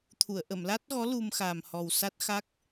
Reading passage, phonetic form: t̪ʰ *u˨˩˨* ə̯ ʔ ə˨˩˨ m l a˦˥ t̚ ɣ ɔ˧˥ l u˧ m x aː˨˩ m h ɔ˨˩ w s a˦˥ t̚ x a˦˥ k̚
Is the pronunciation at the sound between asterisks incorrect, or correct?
correct